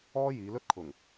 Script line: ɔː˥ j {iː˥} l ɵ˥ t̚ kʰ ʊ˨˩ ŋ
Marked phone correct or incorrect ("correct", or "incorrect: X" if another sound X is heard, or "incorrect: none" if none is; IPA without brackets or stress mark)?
incorrect: iː˨˧